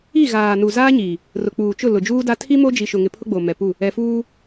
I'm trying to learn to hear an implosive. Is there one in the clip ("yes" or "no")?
no